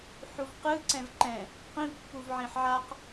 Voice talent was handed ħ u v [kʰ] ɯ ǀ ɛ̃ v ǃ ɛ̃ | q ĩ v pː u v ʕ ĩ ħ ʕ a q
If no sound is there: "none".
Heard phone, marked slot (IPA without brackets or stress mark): q